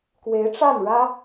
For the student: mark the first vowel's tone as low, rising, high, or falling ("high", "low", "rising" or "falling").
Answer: rising